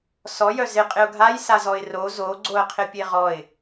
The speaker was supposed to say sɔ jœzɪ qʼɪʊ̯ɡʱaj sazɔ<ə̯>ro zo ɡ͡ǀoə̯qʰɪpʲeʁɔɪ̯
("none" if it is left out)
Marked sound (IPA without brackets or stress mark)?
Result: ɪ̯